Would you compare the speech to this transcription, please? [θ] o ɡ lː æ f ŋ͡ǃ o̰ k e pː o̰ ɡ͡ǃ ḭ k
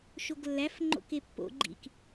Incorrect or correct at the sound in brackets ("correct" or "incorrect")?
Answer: incorrect